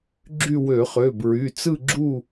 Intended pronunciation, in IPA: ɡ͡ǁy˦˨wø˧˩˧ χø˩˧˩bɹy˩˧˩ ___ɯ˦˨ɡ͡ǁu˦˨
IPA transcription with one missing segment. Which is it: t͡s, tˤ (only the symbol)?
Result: t͡s